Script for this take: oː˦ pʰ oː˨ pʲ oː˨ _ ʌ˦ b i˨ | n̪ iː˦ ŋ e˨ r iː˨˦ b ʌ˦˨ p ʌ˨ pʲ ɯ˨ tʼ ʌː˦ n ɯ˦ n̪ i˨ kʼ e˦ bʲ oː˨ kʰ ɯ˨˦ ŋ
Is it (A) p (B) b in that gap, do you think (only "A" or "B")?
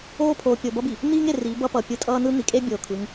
B